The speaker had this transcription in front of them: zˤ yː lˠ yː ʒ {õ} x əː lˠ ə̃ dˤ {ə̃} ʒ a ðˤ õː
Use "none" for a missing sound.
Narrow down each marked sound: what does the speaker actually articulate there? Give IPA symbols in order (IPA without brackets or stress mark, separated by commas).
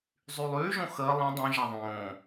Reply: õ, œ̃